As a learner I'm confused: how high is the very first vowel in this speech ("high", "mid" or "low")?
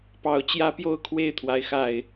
low